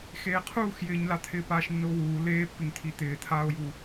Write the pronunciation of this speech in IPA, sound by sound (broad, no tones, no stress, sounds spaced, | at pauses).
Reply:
x eː qʰ uː x j ɪː ɲ l a t̪ʰ ɪː p aː ʃ nː ʊː w uː l eː pː ɪ ŋ t̪ʰ i t̪ ɪː t̪ʰ aː o̯ j u